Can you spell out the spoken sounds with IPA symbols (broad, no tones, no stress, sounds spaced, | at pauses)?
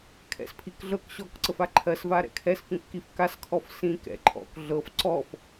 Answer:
kʰ ɛ̰ s pʰ i k ɮ ɤ k ɕ ɔ k ǀ ə f a ǃʰ ɜ s v a ɾ ɛ̰ kʰ ɛ s f ĩ f k i f k a s kʰ ɔ f s ĩ k ɛ̰ ǃʰ ɔ̰ k ɮ ɤ f ǀ ɔ f